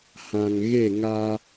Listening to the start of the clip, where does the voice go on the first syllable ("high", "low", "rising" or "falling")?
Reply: low